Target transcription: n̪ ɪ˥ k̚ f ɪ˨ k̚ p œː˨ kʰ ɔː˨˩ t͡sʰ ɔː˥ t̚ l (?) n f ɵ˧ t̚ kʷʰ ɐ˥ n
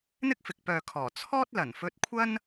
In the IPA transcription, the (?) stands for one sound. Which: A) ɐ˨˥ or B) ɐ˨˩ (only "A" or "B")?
B